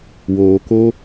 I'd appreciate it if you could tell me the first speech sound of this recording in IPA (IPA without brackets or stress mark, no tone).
w